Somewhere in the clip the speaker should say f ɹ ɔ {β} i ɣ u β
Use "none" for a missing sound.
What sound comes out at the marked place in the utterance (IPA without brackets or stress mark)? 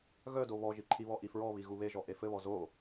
β